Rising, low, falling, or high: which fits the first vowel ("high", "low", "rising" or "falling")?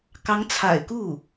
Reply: rising